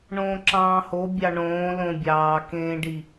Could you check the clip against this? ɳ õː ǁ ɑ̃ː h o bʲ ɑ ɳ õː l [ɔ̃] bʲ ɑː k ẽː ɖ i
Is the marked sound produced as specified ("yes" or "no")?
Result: no